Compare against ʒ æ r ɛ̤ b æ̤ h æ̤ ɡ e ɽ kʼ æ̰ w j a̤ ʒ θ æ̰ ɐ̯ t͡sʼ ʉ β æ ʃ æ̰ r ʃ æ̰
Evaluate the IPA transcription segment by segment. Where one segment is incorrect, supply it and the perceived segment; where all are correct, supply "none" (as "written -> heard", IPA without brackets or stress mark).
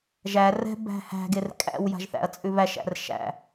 ɽ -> r